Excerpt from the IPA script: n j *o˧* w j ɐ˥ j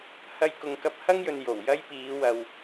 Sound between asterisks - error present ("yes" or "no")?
yes